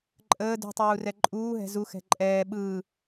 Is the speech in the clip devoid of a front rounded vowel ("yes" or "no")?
yes